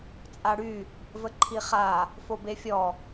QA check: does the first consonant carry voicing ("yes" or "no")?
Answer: no